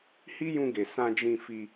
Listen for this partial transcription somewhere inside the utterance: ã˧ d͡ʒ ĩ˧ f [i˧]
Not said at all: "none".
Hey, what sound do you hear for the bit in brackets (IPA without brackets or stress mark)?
i˧